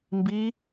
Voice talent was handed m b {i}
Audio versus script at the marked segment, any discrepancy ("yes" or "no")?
no